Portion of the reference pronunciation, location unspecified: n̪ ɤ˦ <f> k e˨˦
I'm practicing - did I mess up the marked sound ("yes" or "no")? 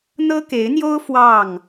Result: yes